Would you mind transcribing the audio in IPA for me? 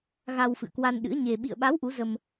ɣ a˧ w f ɨ̰˧˨ ə̯ k w a˧ n ɗ ɨ̰˧˥ ə̯ ɲ e˧ ɓ ḭ˧˨ ə̯ ɓ a˨˦ w ʔ u˨˦ z ə˧ m

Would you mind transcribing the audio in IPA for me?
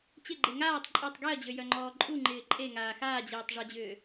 t͡ɕ ɪ ɡ͡ǃ e ŋ aː tˤ ǃʼ ɔ tˤ ɡ e ɐ̯ d͡ʑ ø j œ ŋ͡ǃ ɔː ǃʼ u ŋ͡ǃ ɪː ǃʼ e ŋ aː x aː d͡ʑ eː tˤ ʐ ɔ d͡ʑ ʏː

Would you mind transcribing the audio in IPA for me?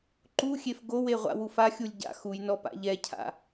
ǃ u xʲ e f ɡ o w e ʁʷ a̰ w u f a xʲ u lʲ ɟ a̰ x u j n ɔ p a̰ ʎ ɛ cʰ a̰

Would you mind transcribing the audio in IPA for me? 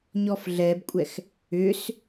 ɲ ɔ f ɮ ɛ b kʷʼ ɛ x | ʏ s

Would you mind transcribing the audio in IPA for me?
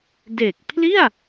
d e˨˩ k̚ pʰ l i˥˩ a̯

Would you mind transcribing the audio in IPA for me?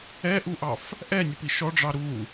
ɛ ʔ u ʔ ɑ f | ʔ ɛ nʲ ə p i ʃ ɔ ɖ͡ʐ ɑ ɾ u

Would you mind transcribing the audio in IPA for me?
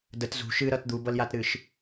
d ə t z ṳ ʃ ɨ ɾ ʌ t d̪ u b ʌ l j a t ɾ ɨ ʃ

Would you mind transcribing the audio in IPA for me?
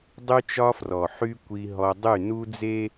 dˤ y˦ t͡ʃ ɒ˦ f r ɔ˨ ħ y˦ kʷ i˦ ɦ ɔ˦ dˤ y˦˨ n u˦ d͡z e˦

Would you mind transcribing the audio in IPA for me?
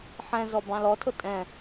ħ ɛ̃ z ɔ b ɑ̃ l ɔ tʰ ʊ tʼ ɛ̃

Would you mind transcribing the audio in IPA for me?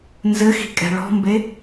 n z ɘ x i̤ kʼ ɛ̤ ɭ ɔ̤ m b e

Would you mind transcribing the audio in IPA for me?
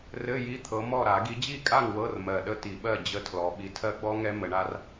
r ɘ˧˥˧ j i˧˥˧ t̪ʰ ɤ˨˦ m ɔ˥˨ ɾ a˧˩˧ ɡ i˨˦ d͡ʑ i˥˨ kʼ a˥˨ ŋ w ɤ˧˥˧ r m ɜ˨˩ ɗ ə˥˨ t i˧˩˧ ɓ ɜ˥˨ d͡ʑ ə˦˥ tʰ l ɔ˨˦ ɓ i˨˦ tʰ ɜ˦˥ ɡ͡b ɔ˦˥ ŋ ɛ˦˥ m ə˨˦ ɳ a˦˥ r

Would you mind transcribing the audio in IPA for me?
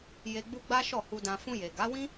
j e˧ ɡ͡b u˦ ɡ͡b a˦ ʃ ɔ˦˨ h u˧ d ã˧ f ũ˧ j e˨ ɡ a˨˦ w ĩ˦

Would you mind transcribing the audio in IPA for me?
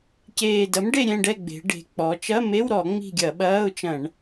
c eː˨˩ d ɐ˩˥ m ɖ e˦˨ ɾʲ ɛ̃˦˨ ɖ ɛ˦˨ ɡ͡b e̤˩˧ ɖ e̤˩˧ k͡p ɔ˩˧ t͡ʃ ɐ˧˥˧ m e˧˥˧ w ɾ ɔ˧˩˧ ŋ͡m i̤˦˨ ɡʲ ɐ˧˩˧ ɓ ɐː˧˥˧ ʊ̯ t͡ʃ ɐ̃˧˩˧ ɳ

